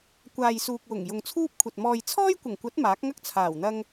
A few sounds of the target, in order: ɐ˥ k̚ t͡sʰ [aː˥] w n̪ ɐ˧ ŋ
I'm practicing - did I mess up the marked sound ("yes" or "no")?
yes